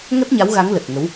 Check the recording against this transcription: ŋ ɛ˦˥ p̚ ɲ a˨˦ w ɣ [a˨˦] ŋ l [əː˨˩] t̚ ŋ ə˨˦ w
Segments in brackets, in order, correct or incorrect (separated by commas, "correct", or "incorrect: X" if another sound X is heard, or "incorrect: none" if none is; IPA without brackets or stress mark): correct, incorrect: ə˨˩